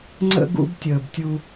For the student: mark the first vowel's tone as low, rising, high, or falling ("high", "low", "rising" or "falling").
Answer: high